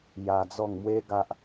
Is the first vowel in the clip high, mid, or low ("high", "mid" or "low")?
low